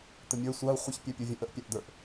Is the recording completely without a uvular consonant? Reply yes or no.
no